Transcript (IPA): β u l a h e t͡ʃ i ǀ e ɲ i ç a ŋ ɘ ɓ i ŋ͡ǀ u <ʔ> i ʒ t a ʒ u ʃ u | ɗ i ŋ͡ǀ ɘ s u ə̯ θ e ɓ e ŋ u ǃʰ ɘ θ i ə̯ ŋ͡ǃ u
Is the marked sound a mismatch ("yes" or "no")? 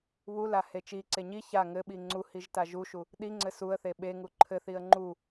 yes